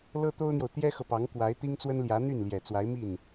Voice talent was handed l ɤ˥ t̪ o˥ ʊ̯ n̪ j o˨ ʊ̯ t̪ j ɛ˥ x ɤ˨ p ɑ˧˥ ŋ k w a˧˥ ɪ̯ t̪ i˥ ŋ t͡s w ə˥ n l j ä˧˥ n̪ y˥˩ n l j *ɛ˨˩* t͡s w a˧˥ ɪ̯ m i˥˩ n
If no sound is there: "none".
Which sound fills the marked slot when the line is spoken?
ɛ˨˩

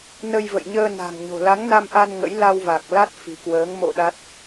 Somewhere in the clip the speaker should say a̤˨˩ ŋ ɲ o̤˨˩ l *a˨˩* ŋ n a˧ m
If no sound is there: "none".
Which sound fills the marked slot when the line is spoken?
a˨˦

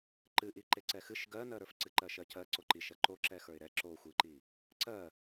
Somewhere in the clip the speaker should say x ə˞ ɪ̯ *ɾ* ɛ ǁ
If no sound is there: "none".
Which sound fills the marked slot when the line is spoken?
ɾ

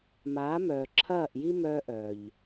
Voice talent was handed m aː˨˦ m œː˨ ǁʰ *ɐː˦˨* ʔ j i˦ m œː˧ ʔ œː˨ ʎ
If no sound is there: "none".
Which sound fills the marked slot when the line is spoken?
ɐː˦˨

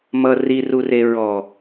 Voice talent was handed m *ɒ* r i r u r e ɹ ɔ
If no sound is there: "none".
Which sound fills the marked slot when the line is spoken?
ʌ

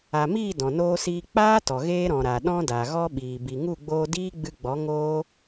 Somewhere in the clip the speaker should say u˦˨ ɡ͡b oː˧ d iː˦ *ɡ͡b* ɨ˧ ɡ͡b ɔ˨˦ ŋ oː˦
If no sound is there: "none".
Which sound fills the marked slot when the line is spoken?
ɡ͡b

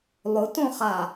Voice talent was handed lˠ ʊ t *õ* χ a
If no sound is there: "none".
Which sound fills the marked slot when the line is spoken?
õ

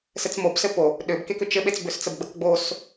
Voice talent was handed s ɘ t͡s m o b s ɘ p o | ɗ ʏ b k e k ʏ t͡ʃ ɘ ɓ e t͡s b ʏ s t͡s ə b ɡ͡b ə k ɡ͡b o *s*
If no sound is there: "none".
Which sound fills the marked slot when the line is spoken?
s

